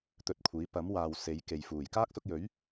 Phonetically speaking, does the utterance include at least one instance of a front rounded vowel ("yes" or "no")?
no